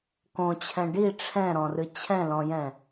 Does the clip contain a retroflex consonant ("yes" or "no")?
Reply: yes